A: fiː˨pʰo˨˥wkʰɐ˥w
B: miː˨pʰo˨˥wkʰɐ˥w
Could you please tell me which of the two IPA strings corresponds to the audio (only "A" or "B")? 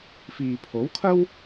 A